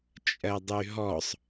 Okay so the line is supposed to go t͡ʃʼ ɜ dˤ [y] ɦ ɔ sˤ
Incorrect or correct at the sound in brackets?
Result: correct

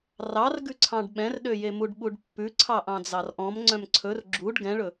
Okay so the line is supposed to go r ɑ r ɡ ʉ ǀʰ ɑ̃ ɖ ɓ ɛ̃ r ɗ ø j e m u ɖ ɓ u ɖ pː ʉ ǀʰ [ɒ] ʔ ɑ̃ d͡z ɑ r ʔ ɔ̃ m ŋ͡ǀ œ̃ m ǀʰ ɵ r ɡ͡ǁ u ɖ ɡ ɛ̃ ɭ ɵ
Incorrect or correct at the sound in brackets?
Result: incorrect: ɑ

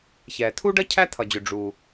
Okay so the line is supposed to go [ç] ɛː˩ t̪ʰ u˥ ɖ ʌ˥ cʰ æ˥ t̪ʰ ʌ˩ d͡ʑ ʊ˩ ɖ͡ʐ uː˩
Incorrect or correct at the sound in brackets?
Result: correct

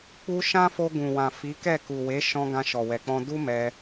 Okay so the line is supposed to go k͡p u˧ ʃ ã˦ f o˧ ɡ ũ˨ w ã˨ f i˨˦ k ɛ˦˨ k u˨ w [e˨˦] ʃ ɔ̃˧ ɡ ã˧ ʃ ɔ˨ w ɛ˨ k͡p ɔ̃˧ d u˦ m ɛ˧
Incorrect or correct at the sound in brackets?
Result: correct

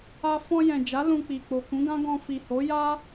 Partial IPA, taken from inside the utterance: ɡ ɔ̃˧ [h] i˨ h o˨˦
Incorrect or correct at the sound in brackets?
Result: incorrect: f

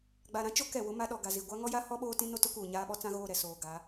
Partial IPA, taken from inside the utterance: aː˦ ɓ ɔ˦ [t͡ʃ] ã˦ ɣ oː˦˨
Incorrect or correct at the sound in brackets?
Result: incorrect: t͡s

